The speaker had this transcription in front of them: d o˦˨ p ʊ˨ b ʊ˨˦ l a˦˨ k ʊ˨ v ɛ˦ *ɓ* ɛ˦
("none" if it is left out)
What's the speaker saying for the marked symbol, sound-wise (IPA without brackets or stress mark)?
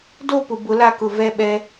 ɓ